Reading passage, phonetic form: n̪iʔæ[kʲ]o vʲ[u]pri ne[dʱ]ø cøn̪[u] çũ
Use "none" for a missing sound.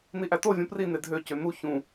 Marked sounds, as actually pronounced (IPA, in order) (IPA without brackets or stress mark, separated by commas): t, ũ, dʱ, u